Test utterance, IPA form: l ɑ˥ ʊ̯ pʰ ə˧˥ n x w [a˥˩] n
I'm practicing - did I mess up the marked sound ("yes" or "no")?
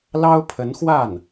no